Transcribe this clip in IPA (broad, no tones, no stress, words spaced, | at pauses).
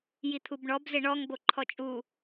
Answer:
jit̪ʰubɳɔb zɪɳɔŋ boǃʰɔt͡ʃʼu